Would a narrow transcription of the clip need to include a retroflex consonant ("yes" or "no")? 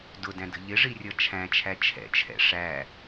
yes